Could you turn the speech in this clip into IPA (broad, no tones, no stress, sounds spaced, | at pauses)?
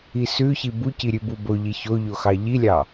i s ʉ ç i b u c i ɾʲ ʉ b u b o ʎ i ç o ʎ o x ɑ ʎ i lʲ ɑ